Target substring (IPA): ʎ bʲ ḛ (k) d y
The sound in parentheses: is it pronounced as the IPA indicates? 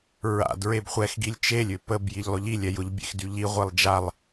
no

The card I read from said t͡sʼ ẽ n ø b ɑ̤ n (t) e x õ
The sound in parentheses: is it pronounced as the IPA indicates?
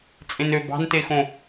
yes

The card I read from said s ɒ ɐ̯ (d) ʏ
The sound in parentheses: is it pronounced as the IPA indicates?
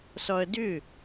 yes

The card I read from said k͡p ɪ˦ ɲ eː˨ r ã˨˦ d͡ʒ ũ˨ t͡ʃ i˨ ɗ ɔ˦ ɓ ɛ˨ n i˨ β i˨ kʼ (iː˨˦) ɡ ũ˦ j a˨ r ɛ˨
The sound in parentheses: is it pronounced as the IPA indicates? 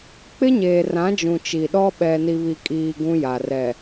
no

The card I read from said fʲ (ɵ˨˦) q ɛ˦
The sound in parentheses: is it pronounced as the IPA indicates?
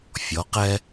no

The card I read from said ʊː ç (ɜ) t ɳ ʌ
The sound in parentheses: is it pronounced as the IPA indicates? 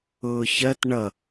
yes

